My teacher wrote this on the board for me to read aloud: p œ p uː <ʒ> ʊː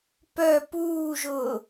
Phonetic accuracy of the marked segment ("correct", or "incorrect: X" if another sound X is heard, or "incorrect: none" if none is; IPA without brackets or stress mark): correct